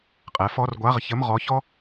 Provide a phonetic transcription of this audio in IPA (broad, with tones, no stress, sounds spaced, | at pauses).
qʼ ɛ˩˥ f ɔ˧˥˧ r ɡʷ a˧˥˧ ʁ ç ə˧˥˧ m ʁ ɔ˧˥ ç ɔ˥